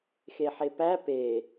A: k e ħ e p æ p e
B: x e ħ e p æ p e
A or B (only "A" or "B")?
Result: B